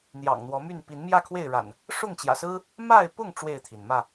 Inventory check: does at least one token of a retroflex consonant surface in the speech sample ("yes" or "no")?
yes